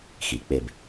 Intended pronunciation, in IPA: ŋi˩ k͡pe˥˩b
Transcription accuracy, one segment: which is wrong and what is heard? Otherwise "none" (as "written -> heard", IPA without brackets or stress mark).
ŋ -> x